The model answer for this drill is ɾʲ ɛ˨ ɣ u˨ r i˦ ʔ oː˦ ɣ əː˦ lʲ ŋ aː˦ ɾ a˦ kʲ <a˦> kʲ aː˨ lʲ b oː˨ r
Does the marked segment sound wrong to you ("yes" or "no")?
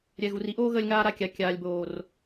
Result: yes